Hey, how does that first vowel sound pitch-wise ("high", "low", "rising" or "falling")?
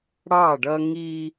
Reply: falling